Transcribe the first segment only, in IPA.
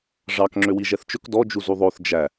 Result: ʐ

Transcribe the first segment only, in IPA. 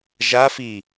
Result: ʒ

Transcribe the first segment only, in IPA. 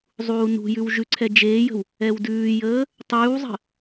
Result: zˤ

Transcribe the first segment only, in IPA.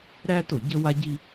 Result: ɾ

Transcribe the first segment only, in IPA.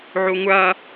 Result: ʕ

